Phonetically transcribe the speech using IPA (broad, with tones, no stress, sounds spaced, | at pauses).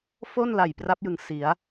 f o˥˩ n l a˨˩ j p r a˦˥ p̚ j ɯ˨˩ ŋ s i˩˦ a̯